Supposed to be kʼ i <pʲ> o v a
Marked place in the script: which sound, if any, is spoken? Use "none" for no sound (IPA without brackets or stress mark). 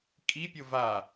pʲ